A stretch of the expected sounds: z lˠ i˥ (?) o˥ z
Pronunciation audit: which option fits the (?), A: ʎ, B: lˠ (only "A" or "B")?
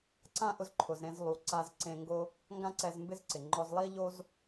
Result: A